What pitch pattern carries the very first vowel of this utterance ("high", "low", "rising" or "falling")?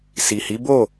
low